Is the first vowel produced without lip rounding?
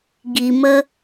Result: yes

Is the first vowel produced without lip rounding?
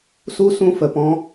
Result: no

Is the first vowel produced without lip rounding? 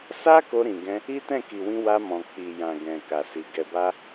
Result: yes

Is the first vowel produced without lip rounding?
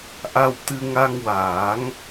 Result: yes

